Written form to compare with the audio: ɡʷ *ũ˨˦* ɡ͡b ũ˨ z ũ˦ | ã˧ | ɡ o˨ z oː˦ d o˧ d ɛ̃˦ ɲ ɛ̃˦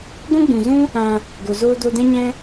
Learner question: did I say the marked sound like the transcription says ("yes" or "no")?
no